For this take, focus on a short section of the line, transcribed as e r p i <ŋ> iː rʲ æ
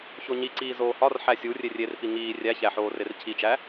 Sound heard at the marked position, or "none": ŋ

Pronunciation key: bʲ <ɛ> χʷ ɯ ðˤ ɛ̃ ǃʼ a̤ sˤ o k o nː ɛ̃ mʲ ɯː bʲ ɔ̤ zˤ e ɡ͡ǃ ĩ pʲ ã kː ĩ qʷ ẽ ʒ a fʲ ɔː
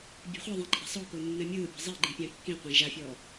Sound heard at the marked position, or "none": ɛ̤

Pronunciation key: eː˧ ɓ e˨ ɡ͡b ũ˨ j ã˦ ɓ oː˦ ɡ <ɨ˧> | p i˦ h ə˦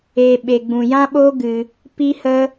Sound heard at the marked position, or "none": ɨ˧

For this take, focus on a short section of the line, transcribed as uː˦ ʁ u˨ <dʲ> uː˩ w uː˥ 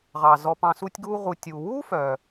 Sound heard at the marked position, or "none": tʲ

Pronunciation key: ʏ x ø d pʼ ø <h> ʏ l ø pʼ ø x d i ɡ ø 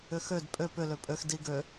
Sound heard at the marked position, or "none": p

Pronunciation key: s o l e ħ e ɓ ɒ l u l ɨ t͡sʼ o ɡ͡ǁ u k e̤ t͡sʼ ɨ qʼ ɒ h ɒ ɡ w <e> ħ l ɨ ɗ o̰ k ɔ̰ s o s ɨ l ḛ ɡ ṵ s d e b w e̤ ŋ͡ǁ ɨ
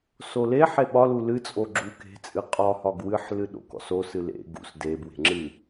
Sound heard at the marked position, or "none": ɨ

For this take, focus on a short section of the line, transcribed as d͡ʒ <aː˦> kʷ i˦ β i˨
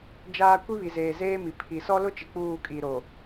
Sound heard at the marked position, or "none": aː˦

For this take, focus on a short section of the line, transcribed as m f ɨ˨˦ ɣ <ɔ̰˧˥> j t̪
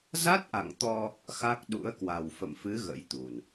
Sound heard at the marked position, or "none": ə̰˧˥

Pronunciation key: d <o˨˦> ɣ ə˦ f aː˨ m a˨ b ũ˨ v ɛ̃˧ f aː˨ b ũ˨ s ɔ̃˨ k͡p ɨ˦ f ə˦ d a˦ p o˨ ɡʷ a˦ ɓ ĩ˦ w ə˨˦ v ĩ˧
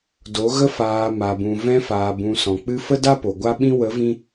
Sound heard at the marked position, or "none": o˨˦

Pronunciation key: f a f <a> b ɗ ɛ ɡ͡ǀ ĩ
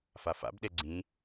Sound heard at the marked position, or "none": a̰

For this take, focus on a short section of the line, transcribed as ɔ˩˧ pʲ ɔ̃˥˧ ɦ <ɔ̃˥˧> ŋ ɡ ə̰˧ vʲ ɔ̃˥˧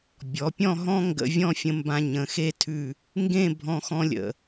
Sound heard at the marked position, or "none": ɔ̃˥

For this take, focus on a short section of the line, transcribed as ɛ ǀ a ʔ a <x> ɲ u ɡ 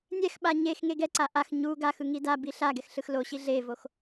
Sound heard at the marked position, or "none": x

